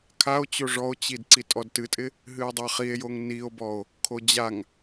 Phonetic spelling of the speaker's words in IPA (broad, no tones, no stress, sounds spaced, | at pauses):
kʰ a o̯ t͡ɕ o ʐ ɔ o̯ t͡ɕ i d ǀ i tʼ ɔ d t ɨ tʼ ɪ | ɦ ɨ o̯ dˤ ɑ χ i e̯ j o ŋ n i o̯ b ɔ o̯ | kʰ o d͡ʑ a ŋ